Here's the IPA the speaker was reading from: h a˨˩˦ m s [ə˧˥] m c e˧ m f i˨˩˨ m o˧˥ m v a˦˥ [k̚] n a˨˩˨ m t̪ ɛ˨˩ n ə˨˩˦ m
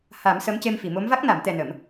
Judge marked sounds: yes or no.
yes, yes

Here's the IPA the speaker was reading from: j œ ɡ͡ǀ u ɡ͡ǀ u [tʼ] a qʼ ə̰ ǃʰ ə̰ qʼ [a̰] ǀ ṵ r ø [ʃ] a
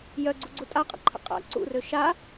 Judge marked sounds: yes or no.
yes, yes, yes

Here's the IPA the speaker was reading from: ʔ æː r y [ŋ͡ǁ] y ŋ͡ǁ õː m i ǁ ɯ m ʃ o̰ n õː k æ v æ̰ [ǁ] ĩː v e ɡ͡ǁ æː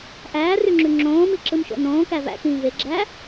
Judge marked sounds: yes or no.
yes, no

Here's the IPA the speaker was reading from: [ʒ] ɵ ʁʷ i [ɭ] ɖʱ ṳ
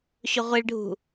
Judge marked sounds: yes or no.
no, yes

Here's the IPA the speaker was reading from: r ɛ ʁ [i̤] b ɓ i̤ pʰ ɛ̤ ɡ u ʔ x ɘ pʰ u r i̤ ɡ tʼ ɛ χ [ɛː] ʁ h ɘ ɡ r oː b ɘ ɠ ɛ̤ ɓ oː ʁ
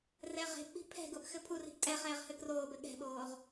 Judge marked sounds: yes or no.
no, yes

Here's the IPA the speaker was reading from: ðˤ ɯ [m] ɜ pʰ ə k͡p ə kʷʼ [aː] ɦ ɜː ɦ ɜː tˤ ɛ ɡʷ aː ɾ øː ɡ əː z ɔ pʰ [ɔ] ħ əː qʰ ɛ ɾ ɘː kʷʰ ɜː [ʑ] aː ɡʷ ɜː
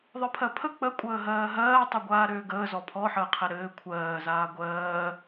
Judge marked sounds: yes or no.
no, no, yes, no

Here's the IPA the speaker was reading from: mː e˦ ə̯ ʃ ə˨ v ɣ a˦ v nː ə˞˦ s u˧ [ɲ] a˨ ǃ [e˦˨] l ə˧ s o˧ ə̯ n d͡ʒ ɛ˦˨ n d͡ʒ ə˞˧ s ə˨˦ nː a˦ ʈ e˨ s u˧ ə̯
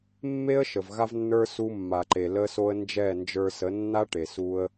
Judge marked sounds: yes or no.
no, no

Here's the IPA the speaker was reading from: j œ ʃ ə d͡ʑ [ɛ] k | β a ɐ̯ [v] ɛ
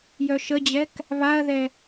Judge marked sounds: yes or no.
yes, no

